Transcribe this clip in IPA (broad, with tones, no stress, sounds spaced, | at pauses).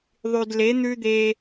ðˤ y˨ d l e˨˦ n̪ ʉ˦ d̪ e˦